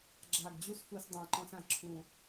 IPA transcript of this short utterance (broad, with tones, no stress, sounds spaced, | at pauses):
ɡ͡ǁ aː˨˩ ɡ d͡ʑ u˦˨ s f u˧˩˧ s dˤ ã˨˩ ǃ ɔ̃˧˩˧ s ã˨˩ ǁʰ ũ˨˩